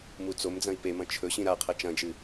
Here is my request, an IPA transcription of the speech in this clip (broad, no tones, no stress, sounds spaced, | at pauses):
m u t͡s o m d͡z ɐ̃ i̯ p e m ɐ̃ t͡ʃʰ ɵ ɕ ĩ ɾ a qʰ ɐ t͡ʃ ɐ̃ d͡ʒ ɨ